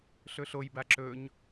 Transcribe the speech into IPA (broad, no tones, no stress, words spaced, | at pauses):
ɬɵɬoj baǁɵɲ